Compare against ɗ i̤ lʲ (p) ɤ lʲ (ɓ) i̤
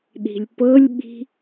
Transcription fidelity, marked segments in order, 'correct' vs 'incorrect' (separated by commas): correct, correct